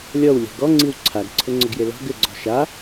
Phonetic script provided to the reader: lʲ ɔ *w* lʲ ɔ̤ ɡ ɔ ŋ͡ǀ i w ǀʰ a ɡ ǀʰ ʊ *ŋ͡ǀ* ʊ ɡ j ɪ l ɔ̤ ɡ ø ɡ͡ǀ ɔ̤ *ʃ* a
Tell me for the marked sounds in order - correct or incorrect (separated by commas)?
correct, correct, correct